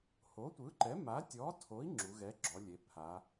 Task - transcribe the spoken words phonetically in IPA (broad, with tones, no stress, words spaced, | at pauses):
ho˨˥tʷɯ˨˥ǃɛ˨˥ ma˨˥tʲɔ˨˥tʰo˨˥i̯ ŋ͡ǁu˩˧ɣɛ˨˥ɡ͡ǁɔ˩˧lʲe˩˧ pʰa˩˧